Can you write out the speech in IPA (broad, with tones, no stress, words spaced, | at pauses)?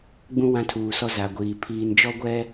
ɡ͡bũ˦ wã˦tʰuː˨sɔ˦ za˨ɡʷiː˨ pʰiː˨nd͡ʒɔ˦ ɡʷɛ˦